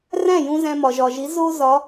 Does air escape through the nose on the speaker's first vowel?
yes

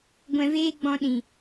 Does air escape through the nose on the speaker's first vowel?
yes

